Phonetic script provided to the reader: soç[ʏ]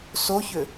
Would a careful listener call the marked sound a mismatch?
no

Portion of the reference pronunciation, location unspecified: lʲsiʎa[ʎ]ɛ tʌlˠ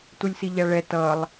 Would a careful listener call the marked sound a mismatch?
yes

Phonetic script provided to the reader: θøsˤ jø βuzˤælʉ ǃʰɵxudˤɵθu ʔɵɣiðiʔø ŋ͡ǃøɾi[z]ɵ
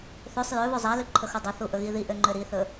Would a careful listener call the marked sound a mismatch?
yes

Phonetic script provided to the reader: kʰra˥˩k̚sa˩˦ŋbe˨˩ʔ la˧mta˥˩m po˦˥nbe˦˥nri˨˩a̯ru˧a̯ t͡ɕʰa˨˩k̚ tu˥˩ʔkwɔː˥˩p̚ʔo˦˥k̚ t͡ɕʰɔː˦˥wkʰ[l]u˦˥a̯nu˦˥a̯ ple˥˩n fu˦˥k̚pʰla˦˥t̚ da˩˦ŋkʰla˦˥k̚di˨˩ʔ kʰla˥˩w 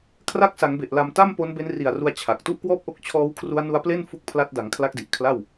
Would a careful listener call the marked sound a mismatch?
yes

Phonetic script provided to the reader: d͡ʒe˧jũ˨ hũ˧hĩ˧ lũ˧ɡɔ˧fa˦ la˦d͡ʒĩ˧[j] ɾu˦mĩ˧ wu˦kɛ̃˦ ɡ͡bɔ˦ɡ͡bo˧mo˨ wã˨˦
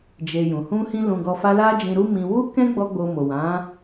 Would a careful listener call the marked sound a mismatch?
yes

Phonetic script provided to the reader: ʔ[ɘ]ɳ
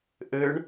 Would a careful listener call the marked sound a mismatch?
no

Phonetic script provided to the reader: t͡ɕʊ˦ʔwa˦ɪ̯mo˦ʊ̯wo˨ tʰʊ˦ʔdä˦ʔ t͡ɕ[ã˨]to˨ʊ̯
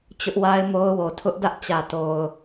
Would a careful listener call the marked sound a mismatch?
yes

